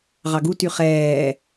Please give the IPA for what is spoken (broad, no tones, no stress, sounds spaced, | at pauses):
ʁ ɑ ɡ u t y χ ɛː